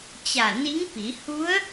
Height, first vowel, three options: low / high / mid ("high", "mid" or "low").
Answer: low